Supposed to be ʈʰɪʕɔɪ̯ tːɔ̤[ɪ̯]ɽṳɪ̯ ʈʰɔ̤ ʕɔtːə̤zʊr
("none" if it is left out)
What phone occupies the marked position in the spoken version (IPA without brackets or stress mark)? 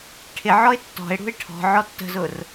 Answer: ɪ̯